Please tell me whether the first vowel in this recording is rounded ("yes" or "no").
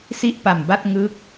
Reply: no